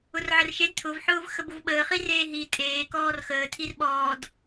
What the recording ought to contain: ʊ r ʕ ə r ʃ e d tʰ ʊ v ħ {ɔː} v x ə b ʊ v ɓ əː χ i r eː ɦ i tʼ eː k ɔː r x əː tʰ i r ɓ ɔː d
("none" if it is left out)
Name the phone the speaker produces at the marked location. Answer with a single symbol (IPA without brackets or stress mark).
ʊː